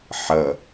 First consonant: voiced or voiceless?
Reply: voiceless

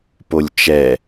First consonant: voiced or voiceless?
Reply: voiceless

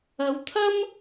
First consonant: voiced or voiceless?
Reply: voiced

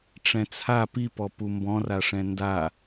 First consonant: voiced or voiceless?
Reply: voiceless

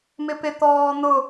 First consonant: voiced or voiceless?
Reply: voiced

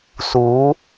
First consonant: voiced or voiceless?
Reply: voiceless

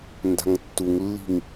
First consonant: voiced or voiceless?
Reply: voiced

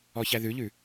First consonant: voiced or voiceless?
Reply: voiceless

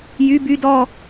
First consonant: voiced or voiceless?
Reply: voiced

